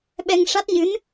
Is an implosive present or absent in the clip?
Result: present